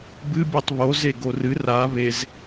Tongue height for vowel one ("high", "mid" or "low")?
high